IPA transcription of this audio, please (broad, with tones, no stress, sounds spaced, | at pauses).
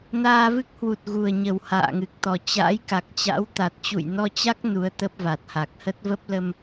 n aː˧ v ɨ˦˥ k̚ h w u˨˩ t̚ ɣ u˨˩ ə̯ ɲ ə˨˩ w h a̰ː˧˨ ŋ ɨ˨˩ k̚ t̪ ɔ˨˩ t͡ɕ a̰ː˧˥ j k a˨˩ k̚ t͡ɕ a̰˧˥ w t̪ a˨˩ t̚ t͡ɕ ṵ˧˨ j n ɔ˧ t͡ɕ a˦˥ k̚ n u˨˦ ə̯ t̪ ə˦˥ p̚ v a˨˩ t̚ h a˨˩ k̚ h ə˦˥ t̚ v ə˦˥ p̚ l ə˧ m